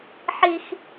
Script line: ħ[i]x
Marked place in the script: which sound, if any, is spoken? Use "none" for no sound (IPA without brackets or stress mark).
i